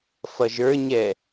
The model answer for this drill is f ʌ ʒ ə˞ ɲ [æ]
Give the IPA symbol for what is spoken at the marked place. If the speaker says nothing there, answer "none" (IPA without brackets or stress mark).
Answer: ɛ